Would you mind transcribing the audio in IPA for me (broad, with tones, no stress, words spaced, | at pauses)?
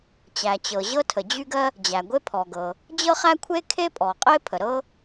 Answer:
t͡ɕæ˩t͡ɕɤ˩ ʑɤ˥tʰə˩d͡ʑy˥ɡɜ˥ | d͡ʑæ˩ɡʷe˥pʰɔ˩ɡɤ˩ | d͡ʑɤ˥χæ˥kʷʰe˥kʰe˥ pʼɔ˩qʼe˥pʰə˩ ɾɤ˥